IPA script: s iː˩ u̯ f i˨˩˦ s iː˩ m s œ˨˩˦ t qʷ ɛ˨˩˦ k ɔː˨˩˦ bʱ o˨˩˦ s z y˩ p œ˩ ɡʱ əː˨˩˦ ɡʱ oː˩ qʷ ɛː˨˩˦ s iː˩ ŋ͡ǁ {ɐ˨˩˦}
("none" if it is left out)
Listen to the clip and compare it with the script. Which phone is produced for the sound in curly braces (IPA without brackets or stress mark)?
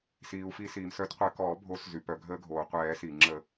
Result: ə˨˩˦